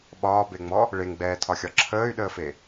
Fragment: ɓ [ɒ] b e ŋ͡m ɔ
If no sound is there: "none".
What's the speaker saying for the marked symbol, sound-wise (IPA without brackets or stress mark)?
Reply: ɒː